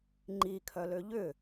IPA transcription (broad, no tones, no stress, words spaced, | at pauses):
ŋ͡ǃikʰœlø ʎʏ